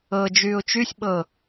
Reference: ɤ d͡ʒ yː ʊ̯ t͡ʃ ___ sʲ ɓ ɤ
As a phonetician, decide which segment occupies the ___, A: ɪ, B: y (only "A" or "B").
B